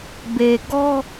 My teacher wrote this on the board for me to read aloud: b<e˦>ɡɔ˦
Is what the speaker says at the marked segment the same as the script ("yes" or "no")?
no